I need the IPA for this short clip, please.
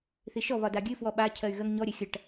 θ i ʃ ɔ β ɒ d a ɡʲ ɨ f w ɔ ɓ a cʰ ɜ y̯ ɣ ɜ ŋ ɲ ɔ ɾʲ ɜ xʲ ɐ ʈ

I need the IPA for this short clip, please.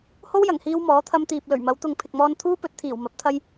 h o˥ w j ɐ˨˩ ŋ h iː˧ w m ɔː˨˥ t̪ʰ ɐ˧ m t̪ iː˨ p̚ l ɵ˨˩ ɥ m ɐ˨˧ w t̪ ʊ˨ ŋ pʰ ɪ˨ k̚ m ɔː˧ n t̪ʰ uː˥ p ɵ˨˥ t̚ t̪ʰ iː˨˩ w m ɐ˨˥ p̚ t̪ʰ ɐ˧ j

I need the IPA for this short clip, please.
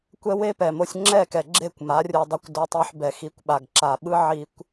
kʷ ɛ˦ w e˦ p ɛ˨ m o˧ sʲ ŋ͡ǁ ɛ˦˨ k ɛ˨ ɡ͡ǁ e˦˨ kʷ m a˨˦ rʲ u˧ dˤ o˧ kʷ d o˧ tˤ i˧ ħ b ɛ˨ x i˨˦ kʷ ɓ a˨ ɡ ǁ a˨ ɓ ɯ˦ ʕ i˦ kʷ

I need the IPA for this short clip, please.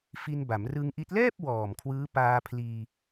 f i˧ n b a˩˦ m r ɯ˧ ŋ ʔ i˦˥ t̚ l ɛː˥˩ p̚ w ɔː˨˩ m kʰ w ɯː˦˥ p aː˧ pʰ l iː˧

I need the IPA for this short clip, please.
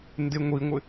n d ɪ ŋʷ i ŋʷ ɪ

